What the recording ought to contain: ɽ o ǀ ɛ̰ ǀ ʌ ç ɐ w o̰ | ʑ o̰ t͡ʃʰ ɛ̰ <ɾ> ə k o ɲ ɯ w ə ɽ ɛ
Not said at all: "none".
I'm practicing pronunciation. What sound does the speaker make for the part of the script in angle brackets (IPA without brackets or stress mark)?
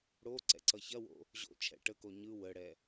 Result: ʈ